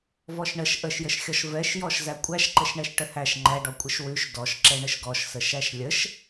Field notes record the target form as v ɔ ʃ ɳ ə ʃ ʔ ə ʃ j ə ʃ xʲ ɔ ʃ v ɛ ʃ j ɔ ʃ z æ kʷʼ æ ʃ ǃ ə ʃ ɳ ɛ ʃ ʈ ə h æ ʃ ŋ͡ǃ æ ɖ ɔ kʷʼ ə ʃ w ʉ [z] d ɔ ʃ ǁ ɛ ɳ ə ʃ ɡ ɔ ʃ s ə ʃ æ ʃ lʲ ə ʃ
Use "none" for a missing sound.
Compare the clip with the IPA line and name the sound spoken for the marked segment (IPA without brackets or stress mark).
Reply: ʃ